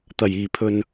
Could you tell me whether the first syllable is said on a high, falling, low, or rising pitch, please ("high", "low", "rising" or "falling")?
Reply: low